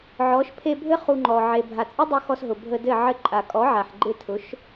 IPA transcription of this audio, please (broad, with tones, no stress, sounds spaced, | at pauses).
ʕ ɔ˨˦ ʃ pʰ e˧ bʱ ɘ˦ χ u˧ ŋ͡ǃ ɔ˨ ʕ e˨ bʱ a˨ t͡sʼ ɪ˦ dˤ u˧ x ɔ˧ s ɦ ʊ˨ bʱ ə˧ d ɘ˦˨ ʕ ɘ˧ ǃʼ a˨ kʼ ɔ˨˦ ʕ a˨ ħ ɡ͡ǃ ɪ˧ tʰ ʊ˨˦ ʃ